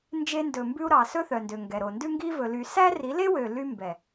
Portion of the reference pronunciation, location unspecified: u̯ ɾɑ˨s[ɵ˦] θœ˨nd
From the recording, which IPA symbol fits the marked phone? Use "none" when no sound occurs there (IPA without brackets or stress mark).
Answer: ɵ˦